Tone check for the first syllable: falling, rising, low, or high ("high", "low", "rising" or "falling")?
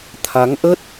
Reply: rising